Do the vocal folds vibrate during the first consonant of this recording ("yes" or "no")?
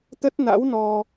no